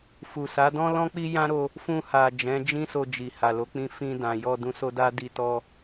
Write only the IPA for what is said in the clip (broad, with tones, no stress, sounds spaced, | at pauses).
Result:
f u˨ s a˨˦ d ɔ̃˦ l ɔ̃˦ k͡p i˦ j ã˦ ɾ o˧ | f ũ˧ h a˨ d͡ʒ ɛ̃˨˦ d͡ʒ ĩ˦ s o˧ d͡ʒ i˨ h a˨ l o˨˦ k͡p ĩ˧ f ĩ˧ d ã˨ j ɔ˧ d ũ˧ s o˦ d a˦ d i˧ t ɔ˧